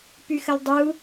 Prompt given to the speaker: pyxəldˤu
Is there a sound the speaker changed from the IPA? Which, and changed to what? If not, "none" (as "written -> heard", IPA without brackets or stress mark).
none